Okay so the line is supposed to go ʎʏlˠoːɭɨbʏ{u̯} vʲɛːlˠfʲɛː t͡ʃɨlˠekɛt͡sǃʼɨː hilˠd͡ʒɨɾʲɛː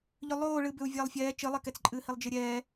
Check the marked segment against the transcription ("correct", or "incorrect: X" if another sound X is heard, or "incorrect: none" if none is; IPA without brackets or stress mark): correct